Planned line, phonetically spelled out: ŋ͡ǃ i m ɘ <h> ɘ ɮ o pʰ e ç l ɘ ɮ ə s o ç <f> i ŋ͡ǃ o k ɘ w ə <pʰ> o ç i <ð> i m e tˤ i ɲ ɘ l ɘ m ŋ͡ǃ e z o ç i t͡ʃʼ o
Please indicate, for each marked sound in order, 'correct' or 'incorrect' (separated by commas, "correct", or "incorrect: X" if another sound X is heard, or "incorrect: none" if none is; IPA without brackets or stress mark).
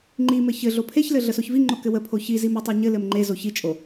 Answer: incorrect: ç, incorrect: v, correct, incorrect: z